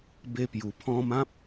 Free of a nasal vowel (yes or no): no